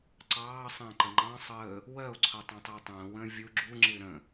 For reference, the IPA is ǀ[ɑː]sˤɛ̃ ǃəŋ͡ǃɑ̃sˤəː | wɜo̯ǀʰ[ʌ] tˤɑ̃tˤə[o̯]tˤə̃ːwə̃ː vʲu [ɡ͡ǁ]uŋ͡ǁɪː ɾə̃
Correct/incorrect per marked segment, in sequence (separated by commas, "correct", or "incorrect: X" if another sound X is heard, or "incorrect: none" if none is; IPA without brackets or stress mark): correct, correct, correct, correct